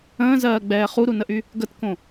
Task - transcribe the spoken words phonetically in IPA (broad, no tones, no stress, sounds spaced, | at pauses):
ə̃ː z ɜː ɡ͡b ɛː χ u ɾ u n ə ʔ y | ɡ ə t k õ